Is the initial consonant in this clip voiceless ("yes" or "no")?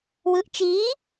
no